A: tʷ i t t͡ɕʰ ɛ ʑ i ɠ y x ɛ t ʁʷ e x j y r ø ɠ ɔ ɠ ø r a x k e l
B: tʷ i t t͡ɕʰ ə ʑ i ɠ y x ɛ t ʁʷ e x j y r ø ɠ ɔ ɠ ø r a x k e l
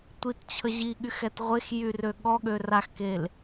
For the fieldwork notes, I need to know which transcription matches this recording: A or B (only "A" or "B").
B